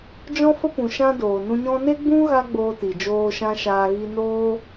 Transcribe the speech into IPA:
d͡ʒ ɔ̃˦ f ə˦ p ũ˨ ʃ ã˧ d oː˨ n ũ˧ ɲ ɔ̃˦ n e˦ ɡ͡b ũ˦ ɣ a˦ ɡ͡b oː˧ t i˨ d͡ʒ oː˧ ʃ ã˦ ʃ aː˧ ɣ i˧ n oː˦

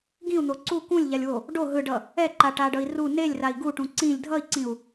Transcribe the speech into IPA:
ɡ ĩ u̯ n̪ o ǀ u k ũ lʲ ʎ a lʲ w o | ɖ o ɦ ɯ ɖ ʌ | ɛ ǃ a ʈ a ɖ ʌ i̯ r u n e lʲ r a i̯ ɡ u ʈ ũ ǀ ĩ lʲ dʱ ʌ i̯ ǀ ĩ u̯

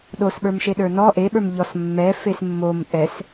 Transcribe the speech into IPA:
ɗ o s ɓ ə˞ m ʃ e ɗ ə˞ n ɔ ʔ e ɓ ə˞ m ʎ ɔ s mː ɛ f e s mː o m ʔ ɛ s

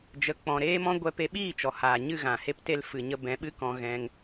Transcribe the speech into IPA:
d͡ʒ ə˧ k͡p ɔ̃˧ ɾ eː˦ m ɔ̃˦ ɡʷ ɛ˧ p e˧ ɓ iː˦˨ t͡ʃ ɔ˨ h aː˨ ɲ ɨ˦˨ ɣ ã˨ h e˧ p t e˧ l f ɨ˨ ɲ ə˧ b ɛ̃˨˦ ɓ ɨ˦ k ɔ̃˧ ɣ ɛ̃˧ ŋ

